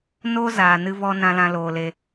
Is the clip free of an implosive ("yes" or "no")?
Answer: yes